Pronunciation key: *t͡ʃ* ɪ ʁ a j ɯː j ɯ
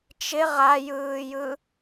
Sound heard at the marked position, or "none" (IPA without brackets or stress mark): t͡ʃ